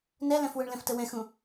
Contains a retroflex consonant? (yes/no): yes